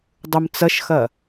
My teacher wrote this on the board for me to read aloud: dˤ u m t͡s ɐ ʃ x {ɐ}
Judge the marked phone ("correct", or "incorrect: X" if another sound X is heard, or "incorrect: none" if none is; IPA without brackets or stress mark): correct